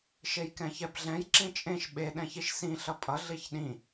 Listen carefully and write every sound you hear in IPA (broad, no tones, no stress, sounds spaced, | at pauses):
ʃ e j k ɛ̃ ç ɛ b ɮ ɛ̃ j ǁ ĩ t͡ʃʼ ẽ ʃ ɓ e ɗ ɛ̃ ç i ʃ s ĩ ɬ ʌ pʼ ʌ ɮ i ç ɗ ĩ